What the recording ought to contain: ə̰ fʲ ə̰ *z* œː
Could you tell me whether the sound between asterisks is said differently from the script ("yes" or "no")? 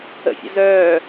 no